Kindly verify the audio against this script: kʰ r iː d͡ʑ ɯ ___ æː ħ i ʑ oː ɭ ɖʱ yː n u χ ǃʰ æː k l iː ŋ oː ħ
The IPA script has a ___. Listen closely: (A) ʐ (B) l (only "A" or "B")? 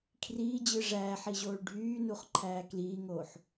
A